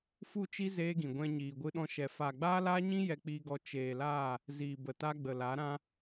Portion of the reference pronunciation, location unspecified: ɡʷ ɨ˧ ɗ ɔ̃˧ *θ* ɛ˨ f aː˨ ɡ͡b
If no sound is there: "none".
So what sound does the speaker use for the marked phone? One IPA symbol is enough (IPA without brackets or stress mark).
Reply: ʃ